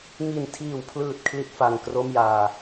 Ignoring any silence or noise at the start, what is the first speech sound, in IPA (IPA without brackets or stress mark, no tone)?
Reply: ŋ